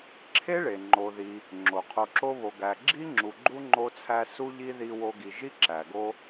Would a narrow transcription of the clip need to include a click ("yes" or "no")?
yes